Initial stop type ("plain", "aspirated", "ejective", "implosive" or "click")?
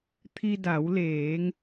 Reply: aspirated